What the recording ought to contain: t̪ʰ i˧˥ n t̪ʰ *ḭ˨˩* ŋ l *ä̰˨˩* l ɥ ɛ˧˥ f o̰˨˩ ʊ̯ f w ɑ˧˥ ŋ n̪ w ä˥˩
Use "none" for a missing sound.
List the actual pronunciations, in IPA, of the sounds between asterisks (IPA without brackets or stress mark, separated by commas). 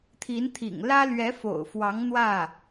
ḭ˨˩, ä˥